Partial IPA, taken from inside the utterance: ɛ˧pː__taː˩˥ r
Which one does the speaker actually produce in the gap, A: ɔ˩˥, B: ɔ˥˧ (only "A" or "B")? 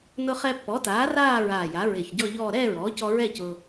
A